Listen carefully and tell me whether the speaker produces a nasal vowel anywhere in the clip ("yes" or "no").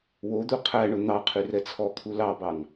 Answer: no